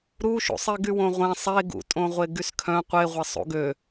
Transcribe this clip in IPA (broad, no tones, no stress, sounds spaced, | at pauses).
ɾ u ʃ ṵ sˤ i ɡ y w õ ʁʷ ẽ sˤ e ɡ ṵ tʼ õ ʁʷ e ɡ y s kʰ œ̃ qʷ e ʁʷ e sˤ ṵ ɡ ø